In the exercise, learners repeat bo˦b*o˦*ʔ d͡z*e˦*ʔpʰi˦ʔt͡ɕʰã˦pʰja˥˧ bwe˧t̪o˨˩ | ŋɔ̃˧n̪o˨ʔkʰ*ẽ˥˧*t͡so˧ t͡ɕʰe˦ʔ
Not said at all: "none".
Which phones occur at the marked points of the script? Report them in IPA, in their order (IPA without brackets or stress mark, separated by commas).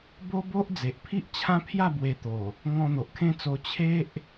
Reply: o˦, e˨, ẽ˦